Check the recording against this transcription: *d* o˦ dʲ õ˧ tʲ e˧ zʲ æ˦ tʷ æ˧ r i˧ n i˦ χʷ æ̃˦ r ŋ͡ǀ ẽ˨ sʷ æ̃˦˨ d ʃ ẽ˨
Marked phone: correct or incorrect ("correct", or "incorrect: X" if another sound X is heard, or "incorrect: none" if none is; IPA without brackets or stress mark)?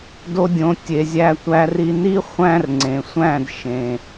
correct